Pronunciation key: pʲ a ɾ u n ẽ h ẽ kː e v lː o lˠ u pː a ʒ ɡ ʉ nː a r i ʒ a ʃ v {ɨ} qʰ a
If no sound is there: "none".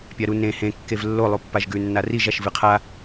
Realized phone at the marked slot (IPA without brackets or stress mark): ɨ